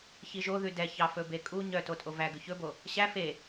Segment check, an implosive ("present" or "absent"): absent